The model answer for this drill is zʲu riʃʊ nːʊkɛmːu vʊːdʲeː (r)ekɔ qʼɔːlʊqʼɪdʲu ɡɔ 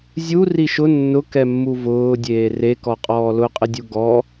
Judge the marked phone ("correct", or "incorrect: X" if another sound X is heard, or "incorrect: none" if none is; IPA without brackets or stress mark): correct